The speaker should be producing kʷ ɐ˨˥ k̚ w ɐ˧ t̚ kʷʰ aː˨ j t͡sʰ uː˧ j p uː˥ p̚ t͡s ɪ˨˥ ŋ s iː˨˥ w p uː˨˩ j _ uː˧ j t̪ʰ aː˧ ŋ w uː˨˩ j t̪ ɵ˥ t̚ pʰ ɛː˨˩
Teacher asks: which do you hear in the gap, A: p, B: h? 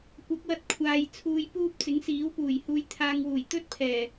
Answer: B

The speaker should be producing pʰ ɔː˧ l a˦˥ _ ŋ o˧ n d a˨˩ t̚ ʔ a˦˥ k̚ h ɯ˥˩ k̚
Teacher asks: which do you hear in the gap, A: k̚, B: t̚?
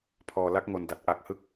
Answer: A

